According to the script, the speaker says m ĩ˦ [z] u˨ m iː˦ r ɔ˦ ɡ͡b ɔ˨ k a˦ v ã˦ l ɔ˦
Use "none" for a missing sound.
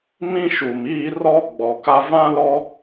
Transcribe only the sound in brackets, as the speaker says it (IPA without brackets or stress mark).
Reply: ʃ